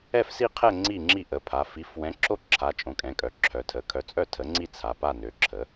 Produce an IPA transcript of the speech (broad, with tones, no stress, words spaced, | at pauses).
ɛ˥˩fsi˥˩qʰɛ˥˩ ŋ͡ǀi˥˩ŋ͡ǁi˥˩ʔə˩˧˩pʰa˩˧˩ fi˩˥f wɛ̃˩˥ǁo˥˩ ǁʰa˩˧˩ t͡ʃʼõ˩˥kʼɛ̃˩˧˩kʼœ˩˥ǁʰœ˩˧˩ tʰə˩˧˩ kʰœ˩˥t͡sʼœ˥˩ tʰə˩˥ŋ͡ǀi˥˩ t͡sʰa˩˧˩pa˥˩ nø˩˥ǁʰə˩˥